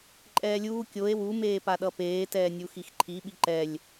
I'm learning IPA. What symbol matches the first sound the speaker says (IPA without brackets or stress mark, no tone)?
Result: ǃʼ